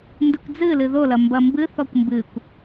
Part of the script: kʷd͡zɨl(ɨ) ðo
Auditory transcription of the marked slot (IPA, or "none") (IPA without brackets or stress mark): ɨ